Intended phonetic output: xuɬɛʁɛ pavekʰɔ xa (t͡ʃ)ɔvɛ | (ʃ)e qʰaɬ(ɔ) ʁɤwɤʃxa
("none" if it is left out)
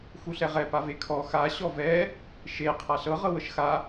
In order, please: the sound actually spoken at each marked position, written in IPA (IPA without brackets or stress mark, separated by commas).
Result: ɕ, ʃ, ɤ